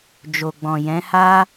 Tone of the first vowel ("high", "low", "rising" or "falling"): low